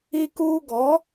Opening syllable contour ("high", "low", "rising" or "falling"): high